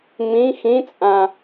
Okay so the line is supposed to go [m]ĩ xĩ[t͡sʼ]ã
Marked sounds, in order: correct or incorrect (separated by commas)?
correct, correct